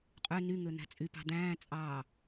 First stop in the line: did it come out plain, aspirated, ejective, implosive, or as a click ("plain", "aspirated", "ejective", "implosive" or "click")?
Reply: ejective